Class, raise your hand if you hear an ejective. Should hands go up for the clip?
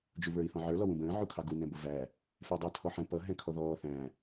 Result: no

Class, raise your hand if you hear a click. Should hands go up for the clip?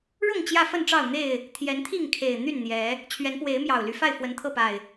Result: no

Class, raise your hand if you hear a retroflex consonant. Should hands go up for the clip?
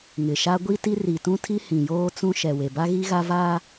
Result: no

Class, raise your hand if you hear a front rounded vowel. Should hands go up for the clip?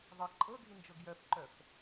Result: yes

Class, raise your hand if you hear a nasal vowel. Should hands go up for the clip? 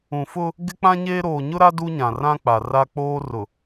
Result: yes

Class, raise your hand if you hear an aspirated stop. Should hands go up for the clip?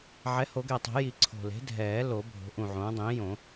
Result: yes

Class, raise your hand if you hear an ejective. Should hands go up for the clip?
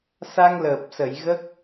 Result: no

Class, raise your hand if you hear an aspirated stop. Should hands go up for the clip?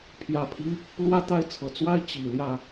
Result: yes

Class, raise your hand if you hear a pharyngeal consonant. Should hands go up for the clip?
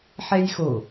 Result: yes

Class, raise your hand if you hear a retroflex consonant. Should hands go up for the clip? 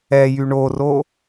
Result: yes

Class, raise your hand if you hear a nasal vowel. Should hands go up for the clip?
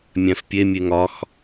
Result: yes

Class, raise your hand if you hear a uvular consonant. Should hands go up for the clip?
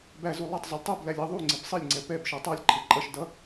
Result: no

